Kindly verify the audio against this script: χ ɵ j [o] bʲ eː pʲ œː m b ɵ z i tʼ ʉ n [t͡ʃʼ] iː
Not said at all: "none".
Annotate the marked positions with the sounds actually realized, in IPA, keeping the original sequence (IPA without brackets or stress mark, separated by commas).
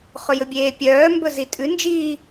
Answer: ɵ, d͡ʒ